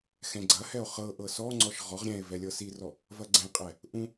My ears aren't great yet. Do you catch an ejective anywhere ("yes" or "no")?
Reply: yes